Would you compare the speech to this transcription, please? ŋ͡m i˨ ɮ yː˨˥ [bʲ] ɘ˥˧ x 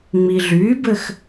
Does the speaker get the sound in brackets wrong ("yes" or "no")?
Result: yes